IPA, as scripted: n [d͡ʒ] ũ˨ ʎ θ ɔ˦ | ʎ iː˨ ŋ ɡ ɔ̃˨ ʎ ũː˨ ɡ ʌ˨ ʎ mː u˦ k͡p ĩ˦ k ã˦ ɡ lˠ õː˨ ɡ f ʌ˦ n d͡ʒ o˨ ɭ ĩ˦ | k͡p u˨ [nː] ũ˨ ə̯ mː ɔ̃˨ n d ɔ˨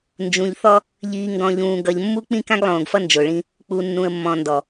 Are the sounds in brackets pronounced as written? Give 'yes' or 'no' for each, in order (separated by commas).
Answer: yes, yes